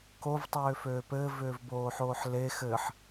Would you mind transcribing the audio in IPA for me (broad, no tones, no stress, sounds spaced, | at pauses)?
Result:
k o v tˤ ʏː f øː p ɘː v ʏː v b oː ħ oː ħ l e x ɘ ħ